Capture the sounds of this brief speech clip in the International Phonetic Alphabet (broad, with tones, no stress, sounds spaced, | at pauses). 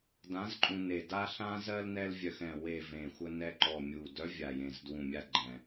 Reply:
d ã˧˥ z ǃʼ ũ˧ n e˨˩ d a˧ ɬ ã˧ z ɜ˧ l n ɛ˧ l vʲ œ˨˩ x ɛ̃˨˩ w e˨˩ v ẽ˨˩ xʷ ə˧ n ɛ˧ ǃ ɔ˨˩ mʲ u˨˩ d œ˧˥ vʲ a˨˩ j ẽ˨˩ z d w ũ˨˩ mʲ a˧ ɡ͡ǃ ɛ̃˨˩